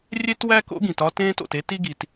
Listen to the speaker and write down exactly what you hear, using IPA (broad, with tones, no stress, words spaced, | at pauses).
rʲe˥twæ˥ko̰˥ɡĩ˩t ɒ˥tẽː˥to̰˩t e˥t i˥ɡi˩t